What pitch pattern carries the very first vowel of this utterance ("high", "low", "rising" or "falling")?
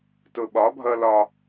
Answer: low